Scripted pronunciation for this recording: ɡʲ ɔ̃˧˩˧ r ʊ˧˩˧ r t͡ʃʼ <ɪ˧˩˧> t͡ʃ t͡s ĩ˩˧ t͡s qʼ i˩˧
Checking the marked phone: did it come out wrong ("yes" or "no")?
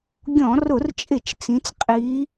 no